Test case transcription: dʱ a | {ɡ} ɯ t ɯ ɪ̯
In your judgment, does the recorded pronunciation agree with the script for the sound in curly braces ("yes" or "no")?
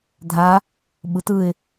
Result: no